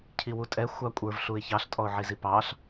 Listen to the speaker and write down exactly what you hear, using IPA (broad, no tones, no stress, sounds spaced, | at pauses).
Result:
cʰ i w u tʼ ɛ xʷ ɑ kʷʼ ə˞ v ɬ u ɪ̯ ç ɑ ɬ tʼ ɔ ʊ̯ ʕ i z i p ɑ ɬ